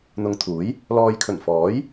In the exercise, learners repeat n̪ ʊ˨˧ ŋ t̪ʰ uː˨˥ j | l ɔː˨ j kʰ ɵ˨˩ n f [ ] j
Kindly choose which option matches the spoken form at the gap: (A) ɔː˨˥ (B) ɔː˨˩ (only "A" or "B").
A